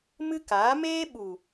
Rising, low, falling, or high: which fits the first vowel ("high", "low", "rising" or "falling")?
high